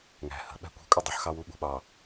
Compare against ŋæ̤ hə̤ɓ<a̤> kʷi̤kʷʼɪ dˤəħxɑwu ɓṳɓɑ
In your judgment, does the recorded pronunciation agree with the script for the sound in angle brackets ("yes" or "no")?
no